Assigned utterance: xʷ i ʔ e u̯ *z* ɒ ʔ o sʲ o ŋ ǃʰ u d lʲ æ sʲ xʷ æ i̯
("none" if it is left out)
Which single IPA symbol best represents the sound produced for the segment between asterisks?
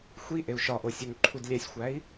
ʃ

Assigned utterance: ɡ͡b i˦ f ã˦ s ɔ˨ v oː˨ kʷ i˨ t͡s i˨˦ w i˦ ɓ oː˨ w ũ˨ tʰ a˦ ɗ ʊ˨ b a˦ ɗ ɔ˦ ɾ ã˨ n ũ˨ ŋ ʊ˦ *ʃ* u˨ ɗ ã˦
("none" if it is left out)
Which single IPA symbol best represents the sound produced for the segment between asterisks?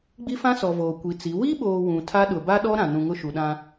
ʃ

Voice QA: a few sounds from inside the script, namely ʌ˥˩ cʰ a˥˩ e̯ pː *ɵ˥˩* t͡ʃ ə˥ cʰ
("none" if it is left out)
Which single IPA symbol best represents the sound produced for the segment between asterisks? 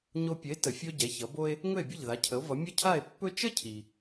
ɵ˥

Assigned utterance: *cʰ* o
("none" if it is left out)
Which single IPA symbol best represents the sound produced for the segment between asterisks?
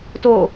t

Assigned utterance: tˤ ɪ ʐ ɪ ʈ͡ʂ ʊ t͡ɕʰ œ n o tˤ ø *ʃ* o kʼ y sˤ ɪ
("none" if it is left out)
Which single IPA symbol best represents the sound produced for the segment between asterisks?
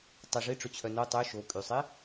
ʃ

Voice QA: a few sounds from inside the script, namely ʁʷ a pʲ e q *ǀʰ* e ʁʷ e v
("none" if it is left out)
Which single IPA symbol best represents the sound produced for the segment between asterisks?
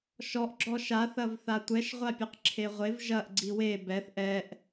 ǁʰ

